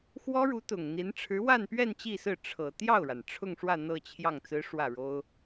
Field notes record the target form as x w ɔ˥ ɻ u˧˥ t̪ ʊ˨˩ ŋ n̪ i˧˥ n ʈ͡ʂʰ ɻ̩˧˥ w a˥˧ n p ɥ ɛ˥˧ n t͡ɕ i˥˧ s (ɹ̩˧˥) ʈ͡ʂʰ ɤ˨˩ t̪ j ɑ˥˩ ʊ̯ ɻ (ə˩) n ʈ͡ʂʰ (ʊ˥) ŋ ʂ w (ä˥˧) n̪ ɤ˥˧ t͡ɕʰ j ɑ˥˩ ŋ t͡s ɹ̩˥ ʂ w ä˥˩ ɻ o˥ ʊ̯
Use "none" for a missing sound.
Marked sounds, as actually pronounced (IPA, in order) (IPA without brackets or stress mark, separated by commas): ɹ̩˥˩, a˩, ʊ˥˧, ä˥˧